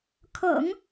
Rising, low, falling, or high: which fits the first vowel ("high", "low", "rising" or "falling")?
low